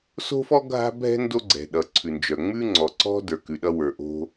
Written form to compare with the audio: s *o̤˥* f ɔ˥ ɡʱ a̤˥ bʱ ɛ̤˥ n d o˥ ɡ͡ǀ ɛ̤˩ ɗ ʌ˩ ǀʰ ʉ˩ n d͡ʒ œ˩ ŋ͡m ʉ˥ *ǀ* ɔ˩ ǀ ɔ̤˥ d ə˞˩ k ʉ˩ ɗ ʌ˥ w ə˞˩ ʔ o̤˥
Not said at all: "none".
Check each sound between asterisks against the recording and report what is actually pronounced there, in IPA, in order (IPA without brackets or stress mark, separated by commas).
o̤˥, ŋ͡ǀ